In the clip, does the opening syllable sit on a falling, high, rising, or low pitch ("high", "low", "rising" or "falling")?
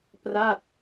falling